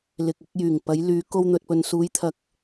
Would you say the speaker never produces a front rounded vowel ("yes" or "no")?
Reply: no